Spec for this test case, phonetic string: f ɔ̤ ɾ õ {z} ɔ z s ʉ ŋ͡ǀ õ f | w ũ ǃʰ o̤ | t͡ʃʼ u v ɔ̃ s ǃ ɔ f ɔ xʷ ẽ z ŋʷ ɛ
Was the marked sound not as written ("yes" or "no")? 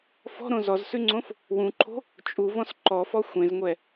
no